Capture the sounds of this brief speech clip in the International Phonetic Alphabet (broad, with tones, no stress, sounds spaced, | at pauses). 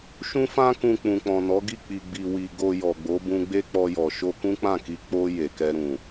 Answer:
ʃ ũ˧ f ã˧ k ũ˨ k͡p ũ˨ k͡p ɔ̃˨ n ɔ˨˦ ɡ i˦˨ k͡p i˨ ɡ͡b i˨ w i˨ ɡ o˧ j ɔ˨ ɡ͡b o˨˦ b ũ˧ ɡ͡b e˦ k͡p ɔ˧ j ɔ˨ ʃ o˧ k ũ˦ k͡p ã˦˨ k i˧ k͡p o˧ j e˨ k ɛ˧ ɾ ũ˨